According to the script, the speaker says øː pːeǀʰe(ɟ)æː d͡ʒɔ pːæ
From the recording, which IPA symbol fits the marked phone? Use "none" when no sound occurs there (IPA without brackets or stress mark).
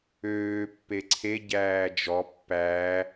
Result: ɟ